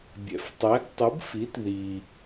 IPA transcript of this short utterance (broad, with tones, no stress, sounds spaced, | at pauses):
bʲ ɛ̰˩ f tˤ ɛ˩˥ ɡ tˤ ɯ˩˥ b f i˩˥ t ð i˩